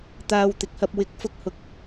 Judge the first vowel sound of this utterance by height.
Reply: low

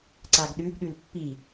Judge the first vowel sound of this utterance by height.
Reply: low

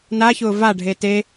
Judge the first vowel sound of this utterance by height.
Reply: low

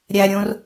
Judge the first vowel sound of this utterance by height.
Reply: low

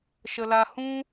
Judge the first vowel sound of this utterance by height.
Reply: mid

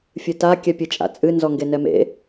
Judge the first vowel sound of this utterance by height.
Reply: high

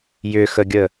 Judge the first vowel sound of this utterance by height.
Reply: high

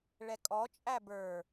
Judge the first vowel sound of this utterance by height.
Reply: mid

